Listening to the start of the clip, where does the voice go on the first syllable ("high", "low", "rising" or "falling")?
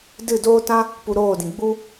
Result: falling